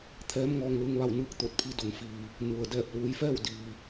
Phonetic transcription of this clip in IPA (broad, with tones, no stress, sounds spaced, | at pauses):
t̪ʰ ɛː˧˥ m ŋ ɔː˧ ŋ l ɯː˧ ŋ ʋ a˥˨ w n ɯː˥˨ k̚ t̪ o˧˩ t̚ pʰ i˧ d o˩ ŋ f iː˩ | n u˩ ə̯ d ɛː˧˩ p̚ l uː˩˧ j f ɛː˥˨ w d iː˩